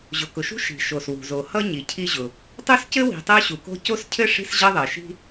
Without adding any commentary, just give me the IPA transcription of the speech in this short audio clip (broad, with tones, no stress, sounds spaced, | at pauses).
ʑ ʊ˨ k ʊ˨ ʃ ṳ˥ ʃ i̤˨ ʃ o˨ s w ṳ˨ z o˨ h ʌ˥ ɲ i˨ cʰ i˥ ʑ ʊ˨ | tˤ o˥ s c ɘ˥ w i̤˨ tˤ ɜ˥ ɕ u˨ k o̤˥ c o˥ s cʰ ɘ˥ ʂ i̤˥ s ʑ ʌ˥ ðˤ ɜ˨ ʃ i̤˥